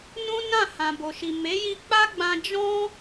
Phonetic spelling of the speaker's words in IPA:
n ũ˦ n ã˦˨ h ã˨ b o˨ ʃ i˨ m e˨˦ j i˧ k͡p a˦ ɡ͡b ã˧ d͡ʒ ɔ̃˦

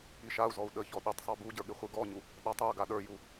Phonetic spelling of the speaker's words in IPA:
i ʃ a u̯ z ɔ u̯ ɗ ə ç ɔ ɗ i tˤ sˤ ə˞ b u ɟ ə˞ ɠ ɪ χʷ ɨ ɡ ɔ ɲ u | ɗ a tˤ ə˞ ɡ a ɗ ə˞ j u

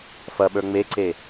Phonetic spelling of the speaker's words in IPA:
f ɐ ɓ ə˞ ŋ͡m e ǀ e

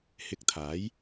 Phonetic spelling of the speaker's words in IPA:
h ɪ˧ k̚ t̪ʰ aː˨˥ j

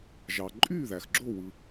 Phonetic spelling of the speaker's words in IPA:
ʒ ɑ˩ ǃʼ y˥˩ ð æ˩ x ɡ͡ǁ o˥˩ w ɯ˩

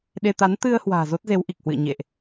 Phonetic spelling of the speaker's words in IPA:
ɗ e˧ t̪ a˨˦ n t̪ ɨ˧ ə̯ h w a̤ː˨˩ z o˦˥ t̚ z e˨˦ w ʔ i˨˩ k̚ h w ɨ̰˧˨ ə̯ ɲ ḛ˧˨ ʔ

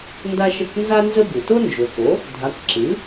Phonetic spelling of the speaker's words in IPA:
n d a˥ ʃ ə˥˩ k n z a˥ n z ə˥ b ɨ˩ t o˥ n d͡ʒ o˩ k o˩˥ | dʱ a˩˥ k ǁ ɨ˩˥

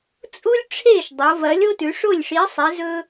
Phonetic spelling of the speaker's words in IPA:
t͡sʼ u˥ lʲ ʈ͡ʂʰ e˥˩ ʃ dˤ o˩˧ v ɐ˨˥ lʲ o˥ t ʉ˩˧ ʂ o˥˩ lʲ ʂ i˨˥ sˤ e˨˥ z ɵ˥

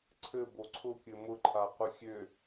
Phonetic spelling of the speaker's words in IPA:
ǀʰ ɘ b o ǀʰ ʊ kʲ ɘ m ʊ ǃʰ a q ʊ xʲ ø

